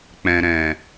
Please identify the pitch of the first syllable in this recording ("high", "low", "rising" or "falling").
low